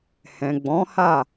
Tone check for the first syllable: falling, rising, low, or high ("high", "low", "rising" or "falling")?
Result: low